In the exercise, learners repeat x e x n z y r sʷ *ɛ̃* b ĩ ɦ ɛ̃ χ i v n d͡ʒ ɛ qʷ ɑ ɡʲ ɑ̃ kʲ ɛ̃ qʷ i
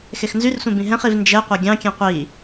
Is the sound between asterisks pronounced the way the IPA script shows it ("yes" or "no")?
no